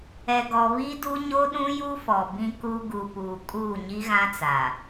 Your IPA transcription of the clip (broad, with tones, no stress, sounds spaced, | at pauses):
ɛ˨ ɡ ɔ˨ β i˦ d u˦ ɲ o˦ ɗ ũ˦ j u˦ f ɔ˨ b ĩ˦ k u˦ ɡ u˨ p uː˨ kʼ uː˦˨ ɲ i˦ ɣ ã˦ t͡s aː˨